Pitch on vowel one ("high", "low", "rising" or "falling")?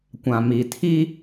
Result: low